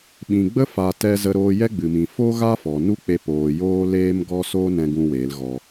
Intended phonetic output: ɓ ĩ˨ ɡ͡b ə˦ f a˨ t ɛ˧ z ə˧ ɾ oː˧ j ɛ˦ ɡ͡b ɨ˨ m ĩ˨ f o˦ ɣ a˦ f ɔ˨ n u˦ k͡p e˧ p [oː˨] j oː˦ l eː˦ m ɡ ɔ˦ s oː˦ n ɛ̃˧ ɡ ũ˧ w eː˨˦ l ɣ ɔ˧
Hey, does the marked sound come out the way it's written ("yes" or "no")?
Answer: yes